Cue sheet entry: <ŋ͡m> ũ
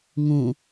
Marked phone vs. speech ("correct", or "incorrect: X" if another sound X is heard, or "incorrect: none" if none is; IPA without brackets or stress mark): incorrect: ŋ